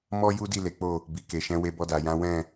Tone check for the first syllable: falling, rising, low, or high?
high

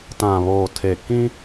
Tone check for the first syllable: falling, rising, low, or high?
low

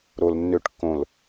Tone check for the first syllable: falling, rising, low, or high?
low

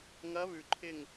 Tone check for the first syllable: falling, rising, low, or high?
rising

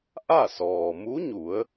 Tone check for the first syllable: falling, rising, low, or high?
falling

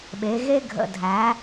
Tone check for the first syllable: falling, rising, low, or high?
rising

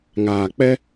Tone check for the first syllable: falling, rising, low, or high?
low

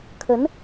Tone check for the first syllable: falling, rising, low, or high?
rising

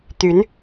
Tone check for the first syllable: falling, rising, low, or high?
rising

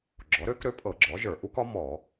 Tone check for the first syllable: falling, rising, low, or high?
rising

